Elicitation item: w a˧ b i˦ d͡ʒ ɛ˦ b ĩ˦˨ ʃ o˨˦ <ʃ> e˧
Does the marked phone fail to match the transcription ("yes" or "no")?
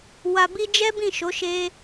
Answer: no